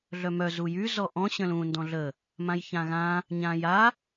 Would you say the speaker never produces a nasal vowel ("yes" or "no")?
no